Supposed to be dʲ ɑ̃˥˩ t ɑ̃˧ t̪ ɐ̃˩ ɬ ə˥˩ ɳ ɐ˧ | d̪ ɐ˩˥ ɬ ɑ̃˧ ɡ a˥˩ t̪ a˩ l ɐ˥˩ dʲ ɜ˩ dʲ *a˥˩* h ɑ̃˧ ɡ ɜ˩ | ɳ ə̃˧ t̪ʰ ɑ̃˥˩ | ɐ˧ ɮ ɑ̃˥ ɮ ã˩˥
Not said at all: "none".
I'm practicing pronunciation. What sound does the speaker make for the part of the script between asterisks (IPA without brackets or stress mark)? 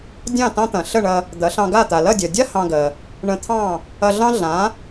a˥